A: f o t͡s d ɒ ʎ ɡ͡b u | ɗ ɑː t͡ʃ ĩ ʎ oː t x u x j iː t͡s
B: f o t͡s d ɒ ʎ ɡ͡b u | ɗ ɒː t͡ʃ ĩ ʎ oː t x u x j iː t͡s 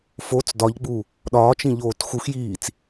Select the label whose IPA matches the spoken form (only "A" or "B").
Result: B